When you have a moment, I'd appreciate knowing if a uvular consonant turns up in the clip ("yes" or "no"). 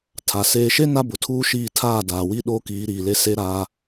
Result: no